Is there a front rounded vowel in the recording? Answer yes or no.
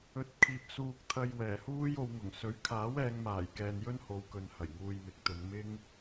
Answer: no